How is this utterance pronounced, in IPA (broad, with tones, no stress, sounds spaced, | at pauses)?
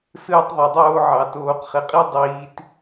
s ɯː˥ tˤ ðˤ e˧ dˤ oː˥ ʕ ɑ˧ t oː˧ q χ e˧ qʼ i˥ dˤ iː˧ t